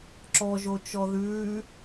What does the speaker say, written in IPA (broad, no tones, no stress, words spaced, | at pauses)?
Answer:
ǁɔʒo t͡ʃɔðʉː